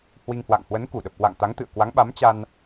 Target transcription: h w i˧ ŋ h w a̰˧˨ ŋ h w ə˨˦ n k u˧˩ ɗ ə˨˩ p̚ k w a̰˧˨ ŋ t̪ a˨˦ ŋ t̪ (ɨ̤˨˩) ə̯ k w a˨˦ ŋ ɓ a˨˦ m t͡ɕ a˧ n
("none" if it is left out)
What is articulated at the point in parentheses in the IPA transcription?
ɨ̰˧˨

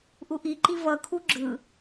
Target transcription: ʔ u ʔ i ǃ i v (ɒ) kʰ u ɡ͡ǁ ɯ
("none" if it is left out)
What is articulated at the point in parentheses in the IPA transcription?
ʌ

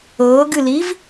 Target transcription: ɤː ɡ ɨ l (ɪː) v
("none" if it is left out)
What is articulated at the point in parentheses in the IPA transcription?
iː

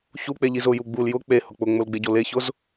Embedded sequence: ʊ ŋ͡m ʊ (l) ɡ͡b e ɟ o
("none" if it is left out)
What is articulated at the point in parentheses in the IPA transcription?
l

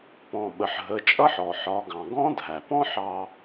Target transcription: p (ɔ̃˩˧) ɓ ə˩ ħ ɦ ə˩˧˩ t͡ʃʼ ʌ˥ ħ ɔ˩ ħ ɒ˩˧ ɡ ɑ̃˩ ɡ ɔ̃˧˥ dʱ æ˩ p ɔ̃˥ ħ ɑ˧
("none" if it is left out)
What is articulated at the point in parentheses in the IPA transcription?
ɔ̃˩˧˩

